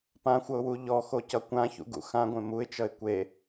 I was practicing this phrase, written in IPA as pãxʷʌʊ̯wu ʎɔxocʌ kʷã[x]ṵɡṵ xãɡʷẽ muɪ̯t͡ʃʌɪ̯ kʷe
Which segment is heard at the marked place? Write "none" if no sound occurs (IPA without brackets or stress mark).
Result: ç